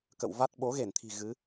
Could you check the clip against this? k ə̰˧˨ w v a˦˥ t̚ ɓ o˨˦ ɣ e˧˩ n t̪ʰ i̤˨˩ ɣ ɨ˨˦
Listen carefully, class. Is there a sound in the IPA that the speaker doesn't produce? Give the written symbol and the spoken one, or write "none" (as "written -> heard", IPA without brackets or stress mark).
none